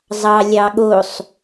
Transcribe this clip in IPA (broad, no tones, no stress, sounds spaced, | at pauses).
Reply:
zˤ ɑ lʲ ɑ ɠ o sˤ